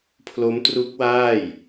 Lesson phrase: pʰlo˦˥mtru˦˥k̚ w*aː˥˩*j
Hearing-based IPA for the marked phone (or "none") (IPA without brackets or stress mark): aː˥˩